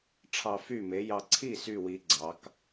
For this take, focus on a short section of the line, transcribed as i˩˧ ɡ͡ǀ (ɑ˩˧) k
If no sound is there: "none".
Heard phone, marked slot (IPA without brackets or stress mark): ɑ˩˧